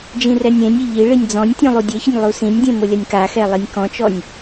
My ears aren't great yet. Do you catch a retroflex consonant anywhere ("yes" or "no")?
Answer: yes